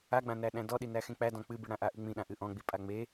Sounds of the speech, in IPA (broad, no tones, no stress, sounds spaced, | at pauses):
a ɡ͡b ã n æ ɗ æ̃ d ɔ ɗ i n æ x ẽ k͡p æ d ɔ̃ k͡p ɨ b i ɽ ã ʔ a ʔ ɨ ŋ͡m ĩ ɗ ã ʔ ɨ ʔ ɔ̃ ɡ͡b i pʼ a ŋ͡m e